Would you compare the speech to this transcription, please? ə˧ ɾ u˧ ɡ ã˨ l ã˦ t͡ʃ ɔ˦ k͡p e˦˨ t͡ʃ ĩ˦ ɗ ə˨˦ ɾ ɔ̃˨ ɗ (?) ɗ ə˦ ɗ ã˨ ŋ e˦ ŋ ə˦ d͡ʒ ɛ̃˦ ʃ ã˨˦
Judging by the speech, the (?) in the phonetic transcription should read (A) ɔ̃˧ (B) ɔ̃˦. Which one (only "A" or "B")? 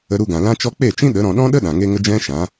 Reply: B